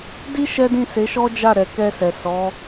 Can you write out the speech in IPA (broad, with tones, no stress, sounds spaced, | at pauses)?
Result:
d i˦ ʃ ɛ˦ d ĩ˦˨ s e˨˦ ʃ ɔ˦ d͡ʒ a˦˨ ɾ ɛ˨ k ɛ˧ s ɛ˨ s ɔ˨˦